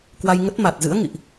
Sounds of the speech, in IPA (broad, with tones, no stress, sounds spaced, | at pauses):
k w a˧ j ŋ ə˦˥ t̚ m a˨˩ t̚ z ɨ̰˧˥ ə̯ ŋ ḭ˧˨ ʔ